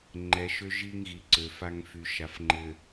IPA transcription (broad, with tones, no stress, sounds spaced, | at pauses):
ŋ͡ǃ ɛ˨ ʃ ø˦ ʒ i˦ ŋ ɣ i˨ ǀ ø˨ f a˦ ŋ f y˨ ʃ a˨ f ŋ͡ǃ ɘ˨